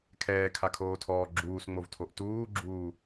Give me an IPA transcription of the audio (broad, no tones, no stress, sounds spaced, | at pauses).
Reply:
kʰ ɛː kʰ a kʰ oː tʰ ɔː ɡ͡ǁ uː s ŋ͡m o v tʰ o ʔ t uː ɡ͡ǁ uː